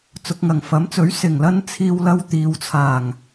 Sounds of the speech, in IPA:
t͡sʊ˨k̚ŋɐ˨˩ŋfɐ˨˥mt͡sɵ˨˥ɥ sɪ˨˩ŋlɐ˧n t͡sʰiː˧wlɐ˧w t̪iː˨wt͡sʰaː˨˩ŋ

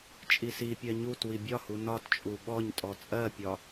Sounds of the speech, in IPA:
t͡ʃʼisipʲɜ ɲut wibʲɒhu nɒtt͡ʃʼu ɓɔɲtʼɔ t͡sʼɜpʲɒ

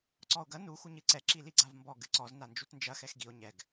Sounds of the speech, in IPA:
ǀɔo̯ɡɐ nu xuɲɨǀɛ ǁiliɡ͡ǀavmbɔ ɡɨǀɔz nand͡ʒutnd͡ʒɐ xɛxɡio̯ ɲɛɡ

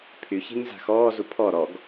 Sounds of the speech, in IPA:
pʰyçe̤ɲ za̤xɔːzu pʰɔ ɾɔɡ

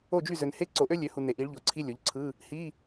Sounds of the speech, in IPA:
o˥˩d͡ʒy˥˩ zø˨nhe˧˥˧ ǀo˩˥ʔø˦˥lʲø˩˥hu˨ ne˨ʔi˩˥ɭʎo˩˥ǀʰi˧˥˧ lʲo˩˥ʎǀʰɯ˧˥˧ | hi˧˥˧

